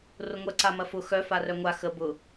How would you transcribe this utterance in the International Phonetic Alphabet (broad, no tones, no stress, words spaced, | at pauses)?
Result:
rʊŋʷɐ ǀamɐfʊ xœ farœŋʷa xə bʊ